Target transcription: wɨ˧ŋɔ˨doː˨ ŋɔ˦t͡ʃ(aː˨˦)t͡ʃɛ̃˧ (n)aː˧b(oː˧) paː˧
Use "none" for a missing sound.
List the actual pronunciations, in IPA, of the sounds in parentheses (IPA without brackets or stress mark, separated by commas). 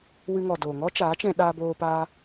aː˨˦, ɗ, oː˧